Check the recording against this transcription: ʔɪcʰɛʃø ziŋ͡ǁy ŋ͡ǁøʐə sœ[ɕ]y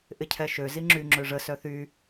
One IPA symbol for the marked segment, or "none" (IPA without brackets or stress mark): θ